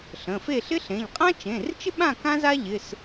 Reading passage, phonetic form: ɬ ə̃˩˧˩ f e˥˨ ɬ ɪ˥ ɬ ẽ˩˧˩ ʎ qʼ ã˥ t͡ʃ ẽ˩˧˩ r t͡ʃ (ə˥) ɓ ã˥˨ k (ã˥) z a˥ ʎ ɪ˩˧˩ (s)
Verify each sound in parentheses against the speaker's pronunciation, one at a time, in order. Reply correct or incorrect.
incorrect: ɪ˥, correct, correct

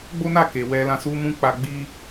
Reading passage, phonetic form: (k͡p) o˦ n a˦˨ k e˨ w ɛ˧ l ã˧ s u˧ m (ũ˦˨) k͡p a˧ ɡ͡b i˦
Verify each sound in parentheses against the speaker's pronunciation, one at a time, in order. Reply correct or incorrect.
incorrect: ɡ͡b, incorrect: ũ˧

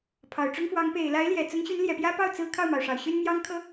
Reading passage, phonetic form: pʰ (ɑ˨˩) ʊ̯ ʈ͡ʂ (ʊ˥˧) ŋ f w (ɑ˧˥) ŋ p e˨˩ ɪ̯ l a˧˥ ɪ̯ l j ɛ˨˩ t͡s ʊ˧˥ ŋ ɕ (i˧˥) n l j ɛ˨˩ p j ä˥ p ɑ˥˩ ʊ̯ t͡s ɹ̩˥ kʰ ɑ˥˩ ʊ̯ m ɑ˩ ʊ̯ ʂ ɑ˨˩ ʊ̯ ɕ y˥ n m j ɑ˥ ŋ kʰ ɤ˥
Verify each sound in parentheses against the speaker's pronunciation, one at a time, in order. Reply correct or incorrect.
correct, incorrect: ʊ˥, correct, incorrect: y˧˥

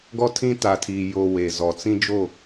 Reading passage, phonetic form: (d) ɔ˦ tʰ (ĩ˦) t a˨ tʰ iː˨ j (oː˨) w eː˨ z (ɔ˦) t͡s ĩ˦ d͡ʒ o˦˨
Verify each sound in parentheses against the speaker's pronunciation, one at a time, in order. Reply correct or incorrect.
incorrect: ɡ, correct, correct, incorrect: ɔ˨

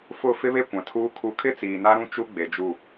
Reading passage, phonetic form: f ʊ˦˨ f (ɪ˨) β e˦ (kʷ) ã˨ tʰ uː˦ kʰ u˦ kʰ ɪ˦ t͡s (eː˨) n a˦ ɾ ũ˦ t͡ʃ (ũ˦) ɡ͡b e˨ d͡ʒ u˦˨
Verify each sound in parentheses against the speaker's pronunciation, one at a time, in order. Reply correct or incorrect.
incorrect: ɪ˦, correct, incorrect: iː˨, incorrect: u˦

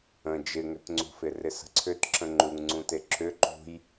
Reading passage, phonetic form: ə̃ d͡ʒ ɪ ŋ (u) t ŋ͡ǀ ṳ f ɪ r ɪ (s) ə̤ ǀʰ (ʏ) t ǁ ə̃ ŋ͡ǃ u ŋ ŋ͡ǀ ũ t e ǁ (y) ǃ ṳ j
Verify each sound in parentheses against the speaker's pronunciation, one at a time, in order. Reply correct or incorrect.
incorrect: ʏ, correct, correct, incorrect: ʏ

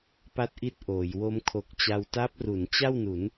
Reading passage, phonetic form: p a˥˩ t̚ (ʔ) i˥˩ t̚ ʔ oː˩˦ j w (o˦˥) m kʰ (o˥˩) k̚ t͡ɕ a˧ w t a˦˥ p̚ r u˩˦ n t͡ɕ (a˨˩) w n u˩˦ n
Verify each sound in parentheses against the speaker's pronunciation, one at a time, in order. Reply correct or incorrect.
correct, correct, incorrect: o˨˩, incorrect: a˥˩

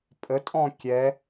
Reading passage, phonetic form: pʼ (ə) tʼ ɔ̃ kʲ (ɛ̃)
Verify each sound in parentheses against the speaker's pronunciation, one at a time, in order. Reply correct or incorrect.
correct, incorrect: ɛ

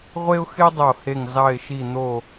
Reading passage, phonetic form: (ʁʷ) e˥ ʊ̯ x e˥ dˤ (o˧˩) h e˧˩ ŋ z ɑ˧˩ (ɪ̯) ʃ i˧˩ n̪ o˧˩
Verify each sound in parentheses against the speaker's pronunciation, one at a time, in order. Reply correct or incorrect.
correct, correct, correct

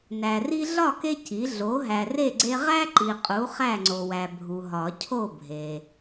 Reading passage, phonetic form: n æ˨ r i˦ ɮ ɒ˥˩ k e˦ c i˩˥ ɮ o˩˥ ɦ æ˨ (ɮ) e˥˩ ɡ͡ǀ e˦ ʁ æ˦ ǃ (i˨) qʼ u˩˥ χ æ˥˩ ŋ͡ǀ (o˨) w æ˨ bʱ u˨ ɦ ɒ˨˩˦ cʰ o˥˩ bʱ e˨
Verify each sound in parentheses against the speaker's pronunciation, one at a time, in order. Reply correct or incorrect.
incorrect: r, correct, correct

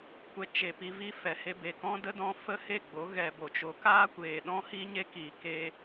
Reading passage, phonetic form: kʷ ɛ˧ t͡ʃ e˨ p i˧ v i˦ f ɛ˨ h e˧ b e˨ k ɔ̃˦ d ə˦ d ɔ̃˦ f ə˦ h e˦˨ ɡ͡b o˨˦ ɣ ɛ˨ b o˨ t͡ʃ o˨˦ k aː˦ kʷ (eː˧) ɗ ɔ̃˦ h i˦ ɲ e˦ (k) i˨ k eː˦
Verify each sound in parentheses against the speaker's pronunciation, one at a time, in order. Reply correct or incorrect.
incorrect: eː˨, correct

